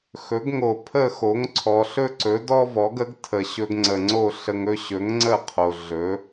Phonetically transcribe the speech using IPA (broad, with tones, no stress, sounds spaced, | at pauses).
x ɵ˩˥ ɡ ŋ o˩ pʰ ə˥˩ x o˩˥ ŋ ǀʰ ɔ˩ ɬ ɵ˥ ǀ ɵ˩˥ d ɔ˥ v ɔ˩˥ ɡ ə˩˥ ɡ tʰ ə˩ ɕ ɵ˧ ɡ ŋ͡ǀ ə˩ ŋ͡ǀ o˥˩ ɬ ə˧ ŋ ɵ˥ ɕ ɵ˩˥ ŋ ŋ͡ǀ ə˥˩ qʰ o˩ ɮ ɵ˩˥